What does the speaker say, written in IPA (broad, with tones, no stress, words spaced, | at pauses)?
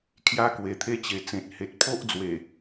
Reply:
kʰja˧kwe˨˩t̪ʰe˧t͡ɕe˨˩ t͡sẽ˨t̚he˨t̚ pʰo˦ʔd͡zwe˨˩